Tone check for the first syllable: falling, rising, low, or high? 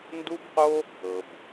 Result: high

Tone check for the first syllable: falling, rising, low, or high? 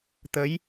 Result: rising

